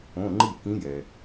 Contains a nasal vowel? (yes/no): yes